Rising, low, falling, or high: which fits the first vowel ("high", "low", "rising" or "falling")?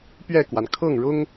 falling